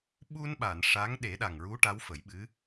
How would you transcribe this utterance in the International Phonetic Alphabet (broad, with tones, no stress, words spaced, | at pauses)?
ɓu˧nɓa˨˩˨n ʂa˧˥ŋ ɗe˨˩˦ɗa˨˩ŋɹu˧˥ ʈa˧˥wfə˨˩˦jɓɨ˧˥